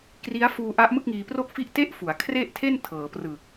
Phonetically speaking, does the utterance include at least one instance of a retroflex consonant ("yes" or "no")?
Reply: no